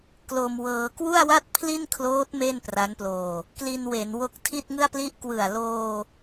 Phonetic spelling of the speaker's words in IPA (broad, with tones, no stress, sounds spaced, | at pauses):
k l o˧ m w ɤː˧ k w u˥˩ a̯ w a˥˩ t̚ pʰ l i˥˩ n kʰ l oː˦˥ t̚ m e˥˩ n p r a˦˥ n p l oː˧ | k l i˧ n w e˩˦ n w o˦˥ k̚ tʰ i˥˩ t̚ ŋ ɯ˥˩ a̯ p l i˥˩ ʔ k w ɯ˨˩ a̯ l oː˧